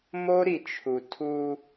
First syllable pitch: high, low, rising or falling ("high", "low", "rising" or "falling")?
high